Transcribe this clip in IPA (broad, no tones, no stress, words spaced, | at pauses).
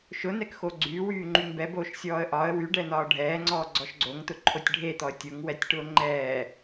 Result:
ʃʊnɛk xoɡ͡ǀyːwyː ŋ͡ǃyŋbɛboːʃ sʲɔːə̯ʔɒə̯ wyɖɛn̪ɒː ɖʱɛːŋ͡ǀɔːɡ͡ǀɔʃ ɡ͡ǀoŋt̪ʊ ǃʰotʲɖʱet̪ɔə̯ tʲʊŋwɛtʲʈʊː ŋ͡ǃɛː